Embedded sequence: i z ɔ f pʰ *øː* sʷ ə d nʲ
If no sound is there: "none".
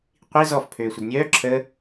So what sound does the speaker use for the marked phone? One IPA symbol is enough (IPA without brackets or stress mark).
øː